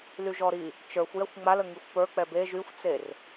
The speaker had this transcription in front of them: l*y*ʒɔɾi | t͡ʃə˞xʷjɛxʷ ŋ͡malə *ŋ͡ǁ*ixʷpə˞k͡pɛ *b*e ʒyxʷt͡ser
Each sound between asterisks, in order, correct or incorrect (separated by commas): correct, incorrect, correct